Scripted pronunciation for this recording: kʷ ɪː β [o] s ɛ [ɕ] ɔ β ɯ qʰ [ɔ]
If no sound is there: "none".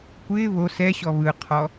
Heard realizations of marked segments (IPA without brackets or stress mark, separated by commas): o, ɕ, ɔ